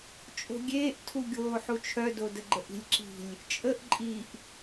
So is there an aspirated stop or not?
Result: yes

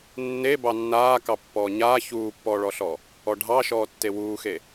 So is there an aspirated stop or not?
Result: no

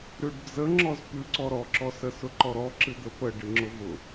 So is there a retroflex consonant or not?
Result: yes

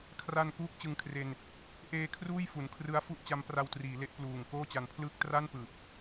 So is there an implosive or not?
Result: no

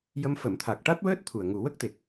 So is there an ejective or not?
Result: no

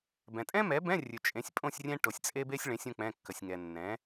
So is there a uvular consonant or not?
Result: no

